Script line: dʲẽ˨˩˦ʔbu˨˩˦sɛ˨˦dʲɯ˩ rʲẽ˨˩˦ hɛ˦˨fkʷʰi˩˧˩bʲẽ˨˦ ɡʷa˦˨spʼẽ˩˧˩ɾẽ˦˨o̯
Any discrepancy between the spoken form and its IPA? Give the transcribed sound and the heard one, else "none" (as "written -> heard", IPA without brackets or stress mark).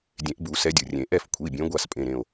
h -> ʔ